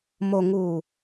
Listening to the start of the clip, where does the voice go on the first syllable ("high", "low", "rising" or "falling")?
low